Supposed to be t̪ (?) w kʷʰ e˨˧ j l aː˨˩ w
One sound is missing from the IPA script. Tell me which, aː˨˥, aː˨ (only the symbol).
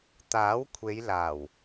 aː˨˥